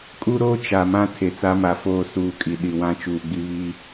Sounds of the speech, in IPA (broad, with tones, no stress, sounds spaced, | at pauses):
kʼ u˦ ɾ oː˦ t͡ʃ a˨ m ã˦ tʰ e˨ t͡s a˦ m a˨ f oː˦˨ s uː˨ kʼ i˨ ɗ i˨ w ã˦ t͡ʃ uː˨ ɡ͡b i˦ β i˦